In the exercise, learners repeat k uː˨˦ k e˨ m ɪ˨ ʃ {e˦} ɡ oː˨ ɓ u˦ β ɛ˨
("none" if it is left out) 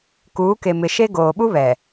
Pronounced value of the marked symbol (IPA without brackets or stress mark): e˦